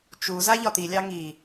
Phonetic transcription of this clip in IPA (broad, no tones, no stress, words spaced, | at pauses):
t͡ʃu zaʎɒt̪ilʲɑ ŋi